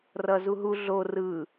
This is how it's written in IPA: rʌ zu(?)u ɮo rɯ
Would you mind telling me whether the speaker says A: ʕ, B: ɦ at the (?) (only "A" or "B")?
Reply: B